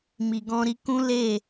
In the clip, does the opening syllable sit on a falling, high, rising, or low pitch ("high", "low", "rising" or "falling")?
low